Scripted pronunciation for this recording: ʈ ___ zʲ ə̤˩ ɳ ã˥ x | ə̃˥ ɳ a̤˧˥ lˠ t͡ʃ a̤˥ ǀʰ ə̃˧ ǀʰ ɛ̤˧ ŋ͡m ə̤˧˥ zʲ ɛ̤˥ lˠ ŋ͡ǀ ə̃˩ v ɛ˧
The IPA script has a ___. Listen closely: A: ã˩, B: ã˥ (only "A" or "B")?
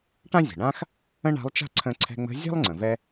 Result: B